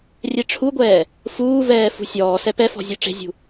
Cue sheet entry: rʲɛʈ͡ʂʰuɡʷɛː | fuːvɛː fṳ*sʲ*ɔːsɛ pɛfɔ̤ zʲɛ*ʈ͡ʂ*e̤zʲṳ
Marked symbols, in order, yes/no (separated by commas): yes, yes